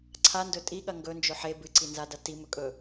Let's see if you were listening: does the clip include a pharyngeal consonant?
yes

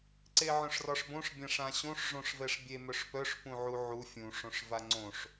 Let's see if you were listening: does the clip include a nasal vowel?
yes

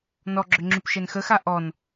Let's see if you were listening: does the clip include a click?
yes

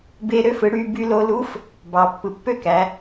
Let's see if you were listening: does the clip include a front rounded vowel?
yes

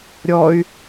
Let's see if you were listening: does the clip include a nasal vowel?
no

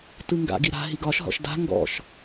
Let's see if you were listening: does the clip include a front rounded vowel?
no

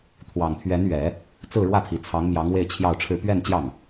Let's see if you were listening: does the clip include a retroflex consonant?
yes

